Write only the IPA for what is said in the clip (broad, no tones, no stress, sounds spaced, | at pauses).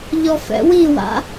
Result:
ʎ ɔ f ɛ̰ w i w a̰